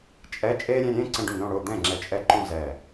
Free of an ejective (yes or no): no